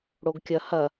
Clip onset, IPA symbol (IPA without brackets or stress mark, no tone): ɽ